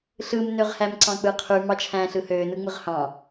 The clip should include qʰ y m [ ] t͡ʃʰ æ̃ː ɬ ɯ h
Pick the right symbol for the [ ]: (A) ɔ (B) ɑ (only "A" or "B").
B